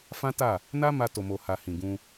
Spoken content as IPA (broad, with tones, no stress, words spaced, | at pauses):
fã˦ ta˦˨ | na˦ ma˧to˨mo˨ha˨ hĩ˨ɡũ˧